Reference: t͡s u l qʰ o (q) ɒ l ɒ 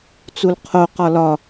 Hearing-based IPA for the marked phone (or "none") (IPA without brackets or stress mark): q